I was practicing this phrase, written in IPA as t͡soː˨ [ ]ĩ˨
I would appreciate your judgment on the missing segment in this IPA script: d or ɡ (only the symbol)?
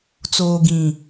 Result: ɡ